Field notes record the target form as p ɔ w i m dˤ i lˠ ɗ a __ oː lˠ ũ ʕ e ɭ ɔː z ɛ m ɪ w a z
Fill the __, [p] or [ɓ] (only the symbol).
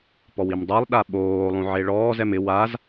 ɓ